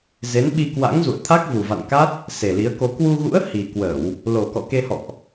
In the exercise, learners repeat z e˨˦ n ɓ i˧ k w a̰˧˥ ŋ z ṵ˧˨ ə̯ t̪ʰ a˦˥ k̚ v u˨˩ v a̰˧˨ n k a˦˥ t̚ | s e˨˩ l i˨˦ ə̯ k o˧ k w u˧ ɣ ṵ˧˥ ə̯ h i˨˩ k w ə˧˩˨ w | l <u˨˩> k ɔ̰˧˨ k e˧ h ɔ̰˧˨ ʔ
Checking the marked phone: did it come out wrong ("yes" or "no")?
yes